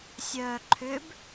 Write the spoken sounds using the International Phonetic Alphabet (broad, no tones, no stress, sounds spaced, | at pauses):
sʲ œː ǃʰ ʏ b